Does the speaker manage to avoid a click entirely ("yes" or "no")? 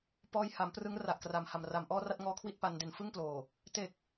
yes